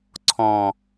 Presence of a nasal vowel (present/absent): present